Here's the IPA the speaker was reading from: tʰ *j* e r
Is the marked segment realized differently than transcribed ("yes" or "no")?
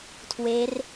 yes